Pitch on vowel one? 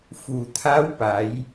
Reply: low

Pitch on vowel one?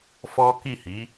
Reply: high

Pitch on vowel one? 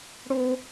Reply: high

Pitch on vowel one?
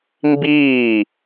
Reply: falling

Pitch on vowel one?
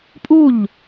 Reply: falling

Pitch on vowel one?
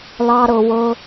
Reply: high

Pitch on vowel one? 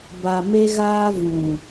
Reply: low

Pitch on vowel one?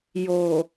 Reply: low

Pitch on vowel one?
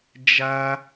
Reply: high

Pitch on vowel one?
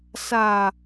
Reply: low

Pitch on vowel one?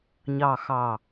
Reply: low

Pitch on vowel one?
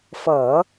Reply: low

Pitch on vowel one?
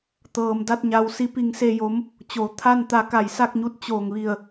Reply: low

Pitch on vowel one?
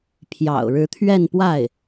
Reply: low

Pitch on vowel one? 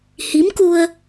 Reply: rising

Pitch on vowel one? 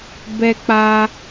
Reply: high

